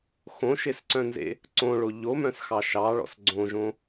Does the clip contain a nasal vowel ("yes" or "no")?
yes